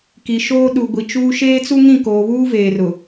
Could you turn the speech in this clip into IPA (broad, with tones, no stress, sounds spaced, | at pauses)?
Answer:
k i˨ ʃ oː˦ ɗ u˨ ɡʷ i˨ t͡ʃ uː˦ ʃ eː˦ t͡s u˦ ŋ ĩ˦˨ k oː˨ β uː˦ v eː˨ r ʊ˨